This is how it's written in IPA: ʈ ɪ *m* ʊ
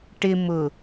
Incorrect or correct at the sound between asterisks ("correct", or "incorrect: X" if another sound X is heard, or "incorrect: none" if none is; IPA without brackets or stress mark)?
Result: correct